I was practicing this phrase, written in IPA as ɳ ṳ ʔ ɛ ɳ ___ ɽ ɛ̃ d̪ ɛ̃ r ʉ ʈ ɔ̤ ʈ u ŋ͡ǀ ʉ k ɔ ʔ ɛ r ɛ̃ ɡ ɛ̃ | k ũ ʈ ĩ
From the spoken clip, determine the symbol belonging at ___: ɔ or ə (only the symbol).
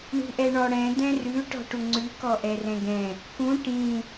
ɔ